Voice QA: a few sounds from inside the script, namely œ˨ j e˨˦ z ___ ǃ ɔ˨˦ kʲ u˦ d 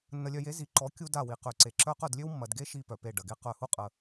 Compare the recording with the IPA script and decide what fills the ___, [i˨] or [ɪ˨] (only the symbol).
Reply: i˨